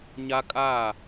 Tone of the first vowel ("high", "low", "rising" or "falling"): high